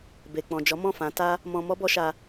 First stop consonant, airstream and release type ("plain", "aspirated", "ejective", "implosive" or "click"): plain